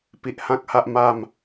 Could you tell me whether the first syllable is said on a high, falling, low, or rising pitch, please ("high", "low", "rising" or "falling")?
low